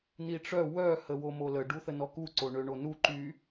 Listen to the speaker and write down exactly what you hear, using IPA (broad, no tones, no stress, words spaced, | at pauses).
niʈ͡ʂœ wœ həwomolə ɖuθənɔku ǀoɳøɳonu ǃy